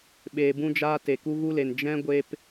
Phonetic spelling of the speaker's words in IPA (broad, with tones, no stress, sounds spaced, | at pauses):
ɓ eː˧ b ũ˦ d͡ʒ aː˦ t e˨ k u˧ ɣ u˧ l e˨ n d͡ʒ ɛ̃˦ ɡʷ e˦ p